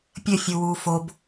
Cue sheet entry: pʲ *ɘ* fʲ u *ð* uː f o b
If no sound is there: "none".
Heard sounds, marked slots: ɘ, w

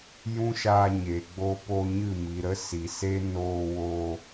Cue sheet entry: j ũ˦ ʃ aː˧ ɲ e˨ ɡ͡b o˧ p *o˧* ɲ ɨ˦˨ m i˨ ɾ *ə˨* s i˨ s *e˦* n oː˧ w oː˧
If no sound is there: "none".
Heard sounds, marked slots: o˧, ə˦, e˦

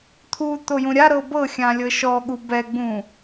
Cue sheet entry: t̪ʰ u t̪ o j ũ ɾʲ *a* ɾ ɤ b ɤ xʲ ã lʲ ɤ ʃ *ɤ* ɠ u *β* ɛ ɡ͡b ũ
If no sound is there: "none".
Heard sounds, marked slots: a, ɔ, b

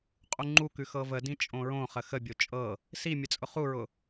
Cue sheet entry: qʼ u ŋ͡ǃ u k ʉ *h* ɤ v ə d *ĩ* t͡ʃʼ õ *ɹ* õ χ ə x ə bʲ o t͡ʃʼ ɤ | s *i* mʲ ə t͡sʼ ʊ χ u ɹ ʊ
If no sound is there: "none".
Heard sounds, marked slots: x, ĩ, ɹ, i

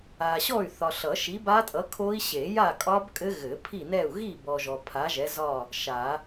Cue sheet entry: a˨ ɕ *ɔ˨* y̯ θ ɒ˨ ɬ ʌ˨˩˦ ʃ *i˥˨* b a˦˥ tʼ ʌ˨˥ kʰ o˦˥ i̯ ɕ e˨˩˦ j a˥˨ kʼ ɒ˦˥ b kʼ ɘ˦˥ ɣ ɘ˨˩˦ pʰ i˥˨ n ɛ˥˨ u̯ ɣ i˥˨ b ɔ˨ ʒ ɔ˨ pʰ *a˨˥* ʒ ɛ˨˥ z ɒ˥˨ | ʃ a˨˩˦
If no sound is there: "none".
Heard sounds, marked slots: ɔ˥˨, i˨˥, a˨˥

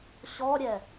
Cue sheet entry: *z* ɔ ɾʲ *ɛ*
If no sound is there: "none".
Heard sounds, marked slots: ɕ, ɛ

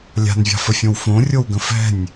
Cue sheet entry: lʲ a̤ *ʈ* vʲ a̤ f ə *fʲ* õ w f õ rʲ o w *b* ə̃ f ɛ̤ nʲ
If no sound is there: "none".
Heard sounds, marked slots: n, fʲ, ɡ

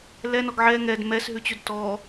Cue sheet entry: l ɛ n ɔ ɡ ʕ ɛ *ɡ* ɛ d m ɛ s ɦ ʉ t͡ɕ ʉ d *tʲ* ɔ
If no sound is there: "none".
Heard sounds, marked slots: ŋ, t

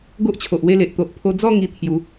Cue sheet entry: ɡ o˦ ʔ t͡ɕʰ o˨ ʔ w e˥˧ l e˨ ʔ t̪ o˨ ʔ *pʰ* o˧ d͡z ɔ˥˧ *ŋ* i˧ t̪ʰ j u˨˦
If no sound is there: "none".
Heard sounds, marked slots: pʰ, ŋ

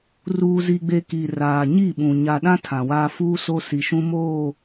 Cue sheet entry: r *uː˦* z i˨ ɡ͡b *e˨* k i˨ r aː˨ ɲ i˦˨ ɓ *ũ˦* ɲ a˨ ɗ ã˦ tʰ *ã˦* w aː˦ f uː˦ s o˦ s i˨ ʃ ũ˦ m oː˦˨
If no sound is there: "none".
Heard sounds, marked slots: uː˨, e˨, ũ˨, ã˨

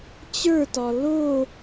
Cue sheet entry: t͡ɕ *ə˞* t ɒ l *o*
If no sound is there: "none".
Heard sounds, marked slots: ə˞, o

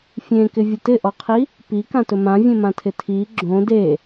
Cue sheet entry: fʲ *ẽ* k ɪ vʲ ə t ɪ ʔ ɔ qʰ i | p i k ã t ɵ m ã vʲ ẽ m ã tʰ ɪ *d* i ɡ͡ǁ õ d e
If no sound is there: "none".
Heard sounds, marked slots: ẽ, tʰ

